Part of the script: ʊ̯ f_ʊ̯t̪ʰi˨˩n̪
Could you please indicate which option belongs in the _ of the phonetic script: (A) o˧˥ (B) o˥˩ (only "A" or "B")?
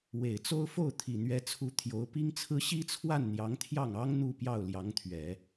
B